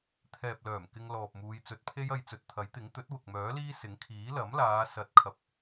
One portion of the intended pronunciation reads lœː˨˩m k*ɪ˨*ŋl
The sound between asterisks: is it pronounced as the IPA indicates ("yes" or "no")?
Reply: no